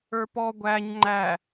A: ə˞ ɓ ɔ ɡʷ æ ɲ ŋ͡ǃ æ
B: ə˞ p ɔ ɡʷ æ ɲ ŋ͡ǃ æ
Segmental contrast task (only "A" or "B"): B